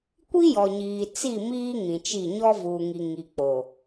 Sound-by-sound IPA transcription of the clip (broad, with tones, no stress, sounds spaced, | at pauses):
kʷ i˦ j ɔ˨ ɲ iː˨ t͡s i˦˨ m iː˦ ŋ ĩ˨ t͡ʃ i˦˨ ɲ ɔ˦ v uː˨ ŋ i˨ ŋ i˨ k͡p o˨